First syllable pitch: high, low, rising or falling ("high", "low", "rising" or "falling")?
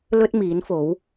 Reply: high